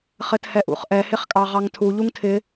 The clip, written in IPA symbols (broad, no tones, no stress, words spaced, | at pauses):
χɘthɛʔṵχʔɛ hɪχkʼɑʁɑŋtʰu ʎuŋtʰɪ